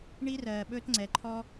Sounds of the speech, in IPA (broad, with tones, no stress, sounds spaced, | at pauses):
ɳ i˦ r ɜː˨ ɓ ɵː˦ t ŋ͡ǀ ɛ˨ ǃʰ ɔ˦